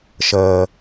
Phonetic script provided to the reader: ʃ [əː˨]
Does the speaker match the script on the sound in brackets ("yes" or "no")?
yes